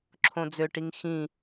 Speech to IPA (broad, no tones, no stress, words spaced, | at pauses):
ǁʰõd͡zøʈiŋ xĩ